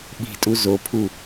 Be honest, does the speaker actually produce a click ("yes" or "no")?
no